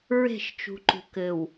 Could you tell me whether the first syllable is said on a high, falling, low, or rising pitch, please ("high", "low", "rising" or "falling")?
falling